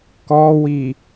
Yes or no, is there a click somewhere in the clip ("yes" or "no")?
no